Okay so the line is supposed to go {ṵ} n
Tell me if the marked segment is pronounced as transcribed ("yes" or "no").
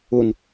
no